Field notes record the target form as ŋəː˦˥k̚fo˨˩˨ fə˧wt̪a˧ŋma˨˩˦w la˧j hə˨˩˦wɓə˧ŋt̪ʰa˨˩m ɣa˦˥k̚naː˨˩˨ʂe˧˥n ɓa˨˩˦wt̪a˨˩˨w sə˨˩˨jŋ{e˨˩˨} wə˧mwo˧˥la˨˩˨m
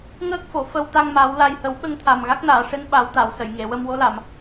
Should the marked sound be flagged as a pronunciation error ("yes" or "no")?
no